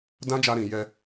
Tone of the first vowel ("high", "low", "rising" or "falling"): high